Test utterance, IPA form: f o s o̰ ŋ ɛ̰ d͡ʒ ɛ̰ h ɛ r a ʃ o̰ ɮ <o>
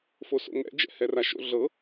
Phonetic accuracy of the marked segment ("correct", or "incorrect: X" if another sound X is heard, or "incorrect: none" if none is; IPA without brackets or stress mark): incorrect: ɤ